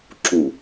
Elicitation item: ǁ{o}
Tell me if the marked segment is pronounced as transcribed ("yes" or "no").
no